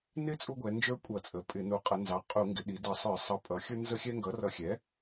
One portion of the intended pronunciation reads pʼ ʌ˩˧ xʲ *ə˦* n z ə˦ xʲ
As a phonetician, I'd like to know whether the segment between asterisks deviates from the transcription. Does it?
yes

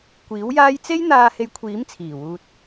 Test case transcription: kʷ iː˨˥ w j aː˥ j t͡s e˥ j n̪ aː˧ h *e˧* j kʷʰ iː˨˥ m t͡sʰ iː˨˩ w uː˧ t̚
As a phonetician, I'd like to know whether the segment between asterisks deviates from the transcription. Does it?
no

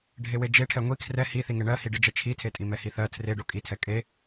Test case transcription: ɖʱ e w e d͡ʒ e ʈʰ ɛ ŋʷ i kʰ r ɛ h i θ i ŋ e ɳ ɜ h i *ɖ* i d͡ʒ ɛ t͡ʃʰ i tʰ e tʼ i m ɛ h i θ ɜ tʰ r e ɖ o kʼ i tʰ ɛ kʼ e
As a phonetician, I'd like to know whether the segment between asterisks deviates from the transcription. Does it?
no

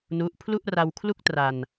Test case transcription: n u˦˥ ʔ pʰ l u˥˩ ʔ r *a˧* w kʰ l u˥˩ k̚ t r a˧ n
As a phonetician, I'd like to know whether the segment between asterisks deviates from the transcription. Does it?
no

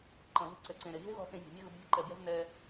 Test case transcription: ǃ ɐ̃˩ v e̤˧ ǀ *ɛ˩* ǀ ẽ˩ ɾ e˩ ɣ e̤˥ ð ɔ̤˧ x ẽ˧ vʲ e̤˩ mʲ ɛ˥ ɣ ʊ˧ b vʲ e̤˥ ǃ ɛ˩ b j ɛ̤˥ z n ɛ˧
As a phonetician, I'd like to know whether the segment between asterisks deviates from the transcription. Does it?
no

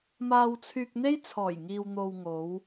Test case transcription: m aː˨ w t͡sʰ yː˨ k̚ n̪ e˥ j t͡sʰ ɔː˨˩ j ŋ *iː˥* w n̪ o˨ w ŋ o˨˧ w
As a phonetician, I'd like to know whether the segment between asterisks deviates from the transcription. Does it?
yes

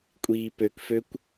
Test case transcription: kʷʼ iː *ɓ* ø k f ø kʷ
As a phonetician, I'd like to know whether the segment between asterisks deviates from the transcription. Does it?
yes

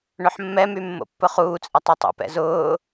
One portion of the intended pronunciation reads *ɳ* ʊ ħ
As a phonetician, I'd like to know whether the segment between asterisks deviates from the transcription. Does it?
no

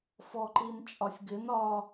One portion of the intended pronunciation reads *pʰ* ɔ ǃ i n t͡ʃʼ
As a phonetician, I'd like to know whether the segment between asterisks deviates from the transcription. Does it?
yes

